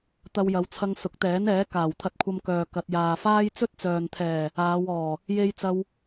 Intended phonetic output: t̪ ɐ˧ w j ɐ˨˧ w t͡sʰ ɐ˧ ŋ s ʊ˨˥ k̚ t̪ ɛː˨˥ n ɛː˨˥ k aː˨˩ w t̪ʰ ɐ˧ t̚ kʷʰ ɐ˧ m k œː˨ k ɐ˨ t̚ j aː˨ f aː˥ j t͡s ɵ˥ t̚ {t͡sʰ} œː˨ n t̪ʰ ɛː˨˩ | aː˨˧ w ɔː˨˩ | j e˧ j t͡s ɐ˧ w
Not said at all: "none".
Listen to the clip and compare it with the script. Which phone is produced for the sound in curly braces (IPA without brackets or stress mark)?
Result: t͡s